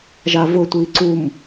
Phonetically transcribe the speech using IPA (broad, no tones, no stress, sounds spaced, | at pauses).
ʒ a v ʊ tʷ i ǀ u m